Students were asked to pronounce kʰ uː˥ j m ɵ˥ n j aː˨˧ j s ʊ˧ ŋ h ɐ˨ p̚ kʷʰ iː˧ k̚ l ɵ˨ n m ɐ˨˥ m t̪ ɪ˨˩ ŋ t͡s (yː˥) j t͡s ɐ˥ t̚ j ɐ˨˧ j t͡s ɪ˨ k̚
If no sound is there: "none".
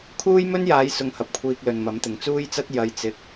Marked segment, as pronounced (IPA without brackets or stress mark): uː˥